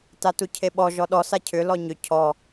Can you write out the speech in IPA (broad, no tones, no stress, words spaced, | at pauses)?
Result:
tatucʰeɓɔ ʒɔɗɔ sacʰʏ lɔɲʏ cʰɔ